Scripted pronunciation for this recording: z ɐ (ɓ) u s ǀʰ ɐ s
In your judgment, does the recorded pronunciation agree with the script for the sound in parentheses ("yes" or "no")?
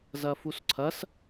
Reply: no